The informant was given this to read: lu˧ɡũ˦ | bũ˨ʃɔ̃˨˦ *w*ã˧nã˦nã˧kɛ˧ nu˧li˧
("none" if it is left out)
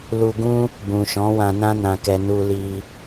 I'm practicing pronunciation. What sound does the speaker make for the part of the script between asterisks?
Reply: w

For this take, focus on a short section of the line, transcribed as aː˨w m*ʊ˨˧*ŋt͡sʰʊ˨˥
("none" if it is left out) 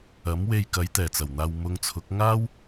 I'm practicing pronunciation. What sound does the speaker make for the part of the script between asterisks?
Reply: ʊ˨˧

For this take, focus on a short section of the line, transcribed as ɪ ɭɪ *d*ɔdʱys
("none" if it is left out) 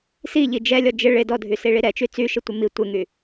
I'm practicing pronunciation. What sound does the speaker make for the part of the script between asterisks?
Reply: d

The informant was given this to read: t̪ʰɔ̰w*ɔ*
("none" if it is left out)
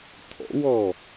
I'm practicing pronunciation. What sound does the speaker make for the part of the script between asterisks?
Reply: ɔ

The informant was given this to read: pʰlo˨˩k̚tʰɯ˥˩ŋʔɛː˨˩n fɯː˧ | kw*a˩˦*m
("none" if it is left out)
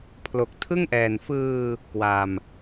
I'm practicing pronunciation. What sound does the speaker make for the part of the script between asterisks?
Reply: a˧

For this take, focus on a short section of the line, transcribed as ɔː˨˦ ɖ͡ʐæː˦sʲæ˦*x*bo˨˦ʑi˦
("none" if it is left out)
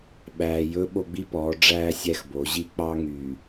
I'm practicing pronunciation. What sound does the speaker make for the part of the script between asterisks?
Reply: x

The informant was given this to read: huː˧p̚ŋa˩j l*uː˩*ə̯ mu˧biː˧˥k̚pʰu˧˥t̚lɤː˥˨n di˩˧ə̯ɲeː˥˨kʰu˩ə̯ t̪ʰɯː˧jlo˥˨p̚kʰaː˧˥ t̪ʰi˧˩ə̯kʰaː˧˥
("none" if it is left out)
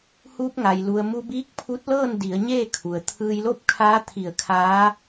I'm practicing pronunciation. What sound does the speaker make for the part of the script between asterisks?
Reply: u˩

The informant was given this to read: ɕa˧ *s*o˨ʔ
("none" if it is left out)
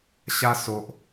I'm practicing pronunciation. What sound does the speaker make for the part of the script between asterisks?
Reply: s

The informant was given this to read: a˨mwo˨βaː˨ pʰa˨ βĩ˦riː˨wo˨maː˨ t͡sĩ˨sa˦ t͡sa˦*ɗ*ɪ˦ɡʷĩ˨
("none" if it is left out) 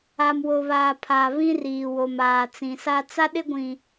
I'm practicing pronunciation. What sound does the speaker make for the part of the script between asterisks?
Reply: ɗ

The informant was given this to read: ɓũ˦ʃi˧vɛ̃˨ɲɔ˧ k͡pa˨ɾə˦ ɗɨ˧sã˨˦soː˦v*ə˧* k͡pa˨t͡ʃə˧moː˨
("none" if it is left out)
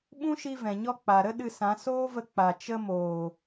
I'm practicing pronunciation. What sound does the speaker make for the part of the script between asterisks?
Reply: ə˧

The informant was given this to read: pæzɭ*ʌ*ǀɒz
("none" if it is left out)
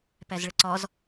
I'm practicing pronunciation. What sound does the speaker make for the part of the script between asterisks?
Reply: ə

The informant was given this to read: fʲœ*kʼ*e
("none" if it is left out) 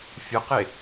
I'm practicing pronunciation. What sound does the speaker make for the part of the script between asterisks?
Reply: q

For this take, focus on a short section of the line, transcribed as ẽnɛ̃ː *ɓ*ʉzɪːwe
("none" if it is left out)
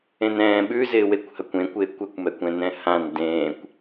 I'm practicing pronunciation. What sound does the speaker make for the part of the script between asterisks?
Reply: ɓ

